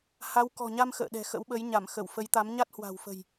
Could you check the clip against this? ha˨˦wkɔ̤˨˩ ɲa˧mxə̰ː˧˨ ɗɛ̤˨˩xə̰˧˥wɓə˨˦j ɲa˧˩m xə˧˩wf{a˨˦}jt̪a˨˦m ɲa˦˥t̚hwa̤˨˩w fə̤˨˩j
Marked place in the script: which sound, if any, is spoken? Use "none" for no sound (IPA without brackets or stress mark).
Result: ə˨˦